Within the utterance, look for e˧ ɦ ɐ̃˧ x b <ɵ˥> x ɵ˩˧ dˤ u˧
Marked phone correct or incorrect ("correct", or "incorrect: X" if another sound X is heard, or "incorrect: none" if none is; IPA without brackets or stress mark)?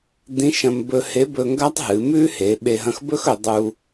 correct